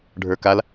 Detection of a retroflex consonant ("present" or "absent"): present